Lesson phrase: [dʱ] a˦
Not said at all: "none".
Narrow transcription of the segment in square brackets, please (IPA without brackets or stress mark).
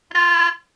ɾ